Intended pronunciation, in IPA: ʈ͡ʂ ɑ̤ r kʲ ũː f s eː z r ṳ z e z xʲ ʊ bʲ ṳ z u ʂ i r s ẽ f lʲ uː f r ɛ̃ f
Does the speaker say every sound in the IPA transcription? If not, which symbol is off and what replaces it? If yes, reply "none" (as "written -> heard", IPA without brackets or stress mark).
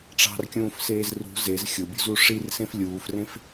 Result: ɛ̃ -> ẽ